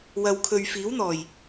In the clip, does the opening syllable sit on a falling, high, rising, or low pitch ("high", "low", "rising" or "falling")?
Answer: low